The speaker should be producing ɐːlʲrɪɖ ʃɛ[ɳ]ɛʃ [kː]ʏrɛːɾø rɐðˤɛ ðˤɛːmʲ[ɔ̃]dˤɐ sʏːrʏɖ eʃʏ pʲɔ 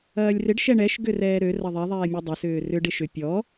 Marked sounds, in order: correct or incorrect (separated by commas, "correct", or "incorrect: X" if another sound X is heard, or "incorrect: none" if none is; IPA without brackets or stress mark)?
correct, incorrect: ɡ, incorrect: ɔ